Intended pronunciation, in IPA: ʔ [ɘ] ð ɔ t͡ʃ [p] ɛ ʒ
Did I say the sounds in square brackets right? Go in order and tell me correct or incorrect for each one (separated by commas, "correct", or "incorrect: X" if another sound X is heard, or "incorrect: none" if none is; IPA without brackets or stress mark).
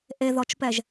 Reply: incorrect: e, correct